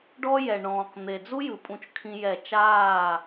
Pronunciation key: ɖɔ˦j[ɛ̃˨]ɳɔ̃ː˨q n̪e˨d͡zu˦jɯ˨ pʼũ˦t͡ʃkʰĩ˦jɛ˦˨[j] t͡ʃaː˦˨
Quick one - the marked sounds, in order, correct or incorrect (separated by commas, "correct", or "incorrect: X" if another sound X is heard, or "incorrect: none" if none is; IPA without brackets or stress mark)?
incorrect: ɛ˨, incorrect: none